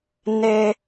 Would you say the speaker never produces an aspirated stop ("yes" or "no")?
yes